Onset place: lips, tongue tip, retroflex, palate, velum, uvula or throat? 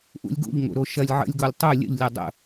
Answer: throat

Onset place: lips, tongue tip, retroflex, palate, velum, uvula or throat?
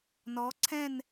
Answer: tongue tip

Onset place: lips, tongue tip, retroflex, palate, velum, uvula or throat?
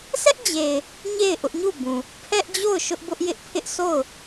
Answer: tongue tip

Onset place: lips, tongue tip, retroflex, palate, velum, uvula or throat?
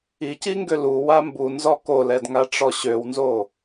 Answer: palate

